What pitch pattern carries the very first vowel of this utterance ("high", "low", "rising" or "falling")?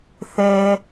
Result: low